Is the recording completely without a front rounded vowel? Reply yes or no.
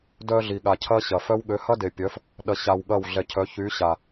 no